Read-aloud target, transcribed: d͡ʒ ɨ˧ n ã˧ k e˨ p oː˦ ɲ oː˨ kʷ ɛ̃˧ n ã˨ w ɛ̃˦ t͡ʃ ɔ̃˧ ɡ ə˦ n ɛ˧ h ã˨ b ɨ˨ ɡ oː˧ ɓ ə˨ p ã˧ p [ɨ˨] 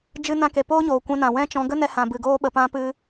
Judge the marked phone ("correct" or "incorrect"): incorrect